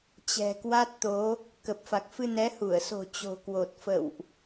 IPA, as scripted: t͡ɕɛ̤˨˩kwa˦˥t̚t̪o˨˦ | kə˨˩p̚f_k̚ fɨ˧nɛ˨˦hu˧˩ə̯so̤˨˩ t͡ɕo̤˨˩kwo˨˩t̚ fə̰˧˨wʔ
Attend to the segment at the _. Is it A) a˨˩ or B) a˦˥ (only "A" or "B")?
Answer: A